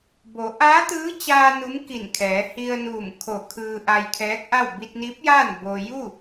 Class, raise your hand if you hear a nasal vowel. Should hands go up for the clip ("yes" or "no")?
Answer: no